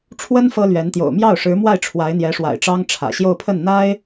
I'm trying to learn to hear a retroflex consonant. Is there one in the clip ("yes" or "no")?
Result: yes